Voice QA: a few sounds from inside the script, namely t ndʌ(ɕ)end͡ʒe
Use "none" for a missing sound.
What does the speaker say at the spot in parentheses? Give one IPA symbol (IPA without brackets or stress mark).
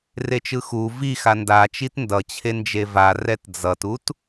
t͡ɕʰ